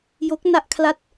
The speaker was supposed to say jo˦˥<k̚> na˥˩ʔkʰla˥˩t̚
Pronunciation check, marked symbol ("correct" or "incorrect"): correct